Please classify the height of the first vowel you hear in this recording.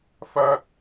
low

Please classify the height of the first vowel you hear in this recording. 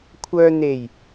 mid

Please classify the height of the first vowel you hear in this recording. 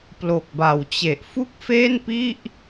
mid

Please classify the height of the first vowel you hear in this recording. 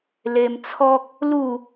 mid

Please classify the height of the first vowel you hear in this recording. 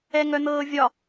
mid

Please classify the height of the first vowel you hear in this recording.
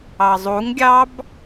low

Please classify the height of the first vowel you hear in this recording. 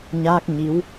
low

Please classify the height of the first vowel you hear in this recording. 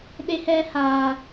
mid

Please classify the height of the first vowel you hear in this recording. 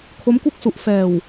mid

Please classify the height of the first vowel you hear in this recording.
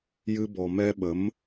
high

